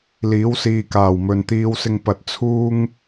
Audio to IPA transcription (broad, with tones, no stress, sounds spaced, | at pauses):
l iː˨˥ w s iː˨ k aː˨˩ w m ɵ˨ n t̪ iː˧ w s ɪ˧ ŋ p ɐ˨ t̚ t͡sʰ uː˥ ŋ